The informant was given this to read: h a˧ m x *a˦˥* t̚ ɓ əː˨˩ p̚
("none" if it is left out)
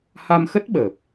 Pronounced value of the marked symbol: ə˦˥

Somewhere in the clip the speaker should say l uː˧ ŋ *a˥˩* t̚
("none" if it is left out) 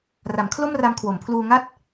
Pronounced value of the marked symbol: a˥˩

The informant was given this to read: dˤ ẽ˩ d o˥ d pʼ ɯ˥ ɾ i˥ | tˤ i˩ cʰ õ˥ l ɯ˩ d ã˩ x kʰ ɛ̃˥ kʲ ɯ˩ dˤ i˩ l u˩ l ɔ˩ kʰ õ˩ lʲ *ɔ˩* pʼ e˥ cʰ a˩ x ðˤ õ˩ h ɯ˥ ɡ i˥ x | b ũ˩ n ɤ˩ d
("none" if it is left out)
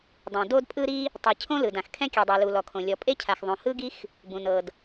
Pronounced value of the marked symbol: ɔ˩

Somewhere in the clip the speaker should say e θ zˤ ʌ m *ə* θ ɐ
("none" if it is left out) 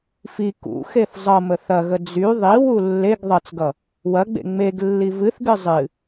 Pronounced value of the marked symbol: ə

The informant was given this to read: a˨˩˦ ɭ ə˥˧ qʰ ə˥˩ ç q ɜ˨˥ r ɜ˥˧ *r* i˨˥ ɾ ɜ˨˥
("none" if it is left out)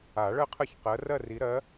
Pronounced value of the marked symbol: r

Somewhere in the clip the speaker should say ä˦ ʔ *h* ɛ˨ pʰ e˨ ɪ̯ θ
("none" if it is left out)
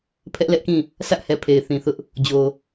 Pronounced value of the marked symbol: h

